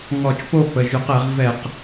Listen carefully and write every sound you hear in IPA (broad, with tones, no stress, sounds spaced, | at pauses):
ŋ ɔ˧˩˧ t͡ʃ p o˥˩ p ə˩˧˩ ʒ ʉ˧˩˧ q ɛ˧˩˧ ʁ v ɛ˧˩˧ q